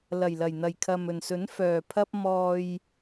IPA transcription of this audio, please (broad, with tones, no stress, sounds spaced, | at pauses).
l ɐ˨˩ j l ɐ˨˩ j n̪ ɐ˨˩ j kʰ ɐ˨ m ɵ˨˩ n s ɵ˨˥ n f œː˨ pʰ ɐ˥ p̚ m ɔː˧ j